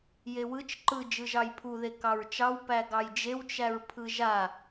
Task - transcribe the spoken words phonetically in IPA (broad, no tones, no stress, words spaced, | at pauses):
jewɯt͡ʃ ǃɯ d͡ʒɯʒɑjpʰu ðekɑɹt͡ʃɑw pæɡɑjd͡ʒew t͡ʃæɹpʰɯʒa